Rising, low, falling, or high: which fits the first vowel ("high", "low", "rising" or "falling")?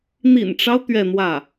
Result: low